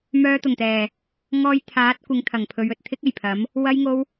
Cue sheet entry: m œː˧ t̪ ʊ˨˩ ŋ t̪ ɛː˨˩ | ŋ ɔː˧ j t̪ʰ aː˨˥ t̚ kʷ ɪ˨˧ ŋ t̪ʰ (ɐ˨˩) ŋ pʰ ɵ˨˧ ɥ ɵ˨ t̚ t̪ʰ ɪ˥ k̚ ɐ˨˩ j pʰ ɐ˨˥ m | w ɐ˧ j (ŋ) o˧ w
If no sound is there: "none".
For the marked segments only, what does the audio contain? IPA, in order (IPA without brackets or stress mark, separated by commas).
ɐ˨˩, ŋ